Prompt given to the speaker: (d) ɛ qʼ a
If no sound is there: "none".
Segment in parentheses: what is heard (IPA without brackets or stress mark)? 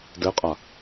d